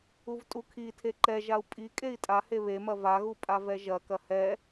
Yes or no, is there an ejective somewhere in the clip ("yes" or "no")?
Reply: yes